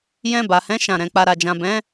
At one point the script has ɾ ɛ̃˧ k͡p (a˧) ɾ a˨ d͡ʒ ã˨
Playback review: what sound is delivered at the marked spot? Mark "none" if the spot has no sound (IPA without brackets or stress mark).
a˨